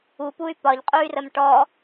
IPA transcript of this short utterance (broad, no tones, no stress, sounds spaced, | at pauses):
u p u y̯ p ɒ ʎ qʼ u y̯ r ə m ʈ ɔ